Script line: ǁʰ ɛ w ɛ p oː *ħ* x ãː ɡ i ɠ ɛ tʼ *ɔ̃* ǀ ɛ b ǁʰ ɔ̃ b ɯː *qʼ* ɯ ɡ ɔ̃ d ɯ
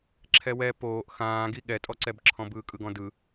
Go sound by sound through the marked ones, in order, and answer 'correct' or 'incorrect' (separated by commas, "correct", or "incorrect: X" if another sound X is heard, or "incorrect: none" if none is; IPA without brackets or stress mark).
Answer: incorrect: ʔ, incorrect: ɔ, incorrect: kʼ